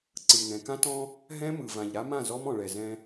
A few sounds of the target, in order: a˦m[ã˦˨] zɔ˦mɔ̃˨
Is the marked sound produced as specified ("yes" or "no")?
yes